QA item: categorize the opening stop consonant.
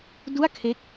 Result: plain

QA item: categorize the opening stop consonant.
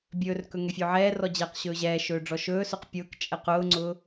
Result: plain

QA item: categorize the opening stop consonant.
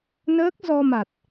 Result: plain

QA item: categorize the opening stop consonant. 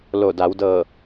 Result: plain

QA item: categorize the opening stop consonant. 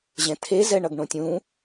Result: aspirated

